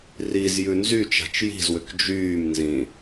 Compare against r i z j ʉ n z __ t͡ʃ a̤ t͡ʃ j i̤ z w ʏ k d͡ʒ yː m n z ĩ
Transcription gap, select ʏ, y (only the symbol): y